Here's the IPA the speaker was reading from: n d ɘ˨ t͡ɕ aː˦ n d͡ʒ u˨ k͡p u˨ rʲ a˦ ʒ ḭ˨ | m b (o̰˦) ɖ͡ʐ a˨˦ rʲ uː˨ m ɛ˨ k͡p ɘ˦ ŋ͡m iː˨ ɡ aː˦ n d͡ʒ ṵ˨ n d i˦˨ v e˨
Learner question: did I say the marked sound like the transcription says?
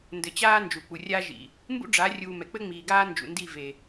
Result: no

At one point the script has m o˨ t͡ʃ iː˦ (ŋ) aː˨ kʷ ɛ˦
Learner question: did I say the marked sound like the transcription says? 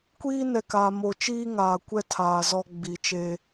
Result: yes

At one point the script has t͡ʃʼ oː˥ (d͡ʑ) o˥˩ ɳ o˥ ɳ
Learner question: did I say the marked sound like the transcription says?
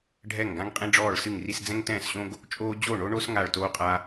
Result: yes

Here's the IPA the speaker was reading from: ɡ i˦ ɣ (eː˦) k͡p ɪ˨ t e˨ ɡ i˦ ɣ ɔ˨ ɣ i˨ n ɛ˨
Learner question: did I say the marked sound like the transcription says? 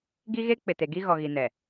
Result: no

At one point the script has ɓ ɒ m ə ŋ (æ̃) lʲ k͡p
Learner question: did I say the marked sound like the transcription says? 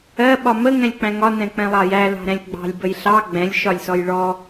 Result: no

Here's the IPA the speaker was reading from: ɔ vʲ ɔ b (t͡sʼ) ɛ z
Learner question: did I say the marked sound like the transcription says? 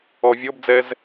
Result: no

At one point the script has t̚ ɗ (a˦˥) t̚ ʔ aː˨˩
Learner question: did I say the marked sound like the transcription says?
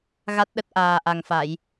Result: no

